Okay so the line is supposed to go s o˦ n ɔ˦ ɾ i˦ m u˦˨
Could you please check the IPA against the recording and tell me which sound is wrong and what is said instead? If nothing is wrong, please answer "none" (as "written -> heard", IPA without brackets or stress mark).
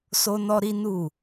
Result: m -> n